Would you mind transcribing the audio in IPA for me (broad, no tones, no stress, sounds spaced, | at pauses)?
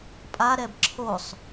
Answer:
pʼ a ɾ ɛ b ǁʰ o sˤ